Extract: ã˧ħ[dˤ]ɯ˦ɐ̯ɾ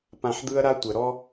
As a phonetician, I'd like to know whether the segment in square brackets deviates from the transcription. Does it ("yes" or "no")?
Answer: yes